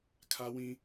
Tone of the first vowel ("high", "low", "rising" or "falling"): high